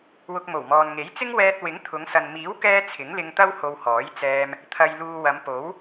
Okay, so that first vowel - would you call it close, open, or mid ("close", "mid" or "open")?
close